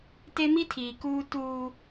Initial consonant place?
alveolar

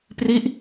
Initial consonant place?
labial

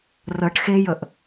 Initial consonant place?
alveolar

